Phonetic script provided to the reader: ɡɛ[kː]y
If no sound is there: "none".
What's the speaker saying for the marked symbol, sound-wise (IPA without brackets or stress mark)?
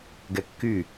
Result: kː